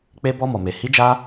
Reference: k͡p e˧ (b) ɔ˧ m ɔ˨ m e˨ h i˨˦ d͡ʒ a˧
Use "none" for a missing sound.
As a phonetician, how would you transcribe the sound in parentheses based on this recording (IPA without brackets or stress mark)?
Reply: b